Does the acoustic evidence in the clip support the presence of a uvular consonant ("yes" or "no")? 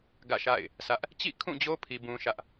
no